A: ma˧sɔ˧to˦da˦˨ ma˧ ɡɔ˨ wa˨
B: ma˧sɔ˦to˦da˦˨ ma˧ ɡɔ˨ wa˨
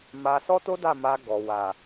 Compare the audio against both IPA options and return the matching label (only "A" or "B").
B